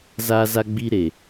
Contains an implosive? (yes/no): no